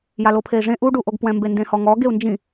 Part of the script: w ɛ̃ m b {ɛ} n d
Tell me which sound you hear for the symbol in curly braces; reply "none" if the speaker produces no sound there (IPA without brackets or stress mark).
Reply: e